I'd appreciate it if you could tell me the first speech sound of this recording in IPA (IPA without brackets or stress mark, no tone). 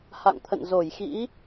h